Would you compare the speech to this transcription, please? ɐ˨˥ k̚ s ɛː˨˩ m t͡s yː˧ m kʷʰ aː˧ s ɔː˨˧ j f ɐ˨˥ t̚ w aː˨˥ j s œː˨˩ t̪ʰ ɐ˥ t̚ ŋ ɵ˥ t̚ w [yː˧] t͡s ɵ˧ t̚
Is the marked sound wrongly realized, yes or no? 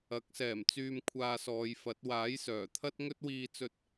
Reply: yes